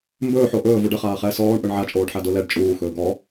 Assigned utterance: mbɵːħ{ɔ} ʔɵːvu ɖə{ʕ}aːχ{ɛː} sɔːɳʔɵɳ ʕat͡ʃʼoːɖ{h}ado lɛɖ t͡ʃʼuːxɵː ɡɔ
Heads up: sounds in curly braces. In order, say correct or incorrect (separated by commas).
incorrect, incorrect, correct, incorrect